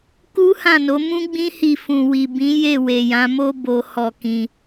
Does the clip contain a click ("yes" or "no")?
no